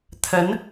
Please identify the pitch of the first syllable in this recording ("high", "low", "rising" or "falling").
rising